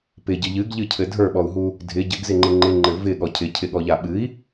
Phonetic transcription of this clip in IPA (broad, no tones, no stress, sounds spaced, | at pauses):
p ɪ ɟ ɘ ʎ ɨ ɡ ʎ ɨ cʰ ɘ dʱ ə˞ ɓ ɔ u̯ ɦ u | dʱ ɪ ɟ ɘ ɡ z ɪ ŋ͡ǃ ɪ ŋ͡ǃ ɪ ŋ͡ǃ ɘ v ɪ ɠ ɔ cʰ ɪ cʰ ɪ ɠ ɔ ʎ a ɓ ɨ i̯